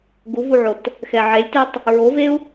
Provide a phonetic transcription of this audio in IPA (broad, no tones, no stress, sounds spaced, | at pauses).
ɡ u v u ʕ o t | x ɛ ʕ e lʲ t ɛ tˤ | ɹ o v e u̯